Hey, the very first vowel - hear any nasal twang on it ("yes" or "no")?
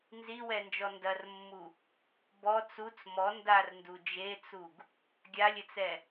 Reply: no